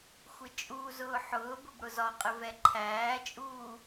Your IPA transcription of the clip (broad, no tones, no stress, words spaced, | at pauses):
xʷɪt͡ʃʼuːzʊː ħʊːbʊb ɽʊzɒqʼɪ vɛǃʰæːt͡ʃʼuː